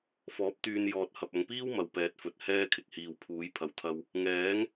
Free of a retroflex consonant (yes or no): yes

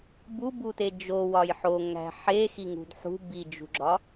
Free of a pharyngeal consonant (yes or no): no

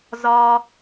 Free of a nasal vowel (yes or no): yes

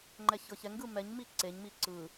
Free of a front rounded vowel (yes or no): yes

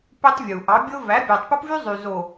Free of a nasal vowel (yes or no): yes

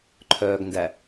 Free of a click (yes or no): no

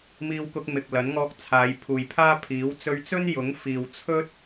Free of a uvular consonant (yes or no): yes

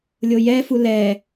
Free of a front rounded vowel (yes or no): yes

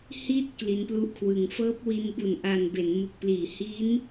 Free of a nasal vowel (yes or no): yes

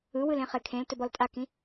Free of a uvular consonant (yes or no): no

